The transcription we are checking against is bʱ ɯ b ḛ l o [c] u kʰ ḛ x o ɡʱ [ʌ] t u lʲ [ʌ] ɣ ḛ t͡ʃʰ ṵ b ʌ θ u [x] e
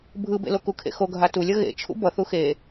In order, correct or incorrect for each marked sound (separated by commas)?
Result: incorrect, incorrect, correct, correct